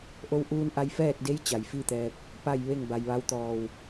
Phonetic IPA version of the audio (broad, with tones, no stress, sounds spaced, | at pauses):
ʔ o˧ w ʔ uː˧ n ʔ a˧ j f ɛː˥˨ t̚ d e˧˥ j t͡ɕ a˩ j f i˥˨ t̪ ɛː˧ p̚ | p a˥˨ j ʋ e˥˨ ŋ b a˩ j ʋ a˧˥ w t̪ ɔː˧˩ w